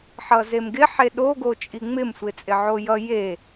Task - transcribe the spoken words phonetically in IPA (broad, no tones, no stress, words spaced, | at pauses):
ħʌzemɡɪ ħeɗo ɡot͡ʃʼiŋ͡mɪm sʷɪt͡sʼɪʕojʌ je